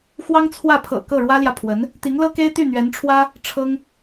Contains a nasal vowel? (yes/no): no